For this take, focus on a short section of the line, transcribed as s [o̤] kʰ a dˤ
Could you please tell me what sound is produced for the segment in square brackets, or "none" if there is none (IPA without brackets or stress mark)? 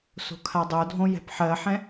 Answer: o̤